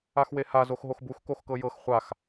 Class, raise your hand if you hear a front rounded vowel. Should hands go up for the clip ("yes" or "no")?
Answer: no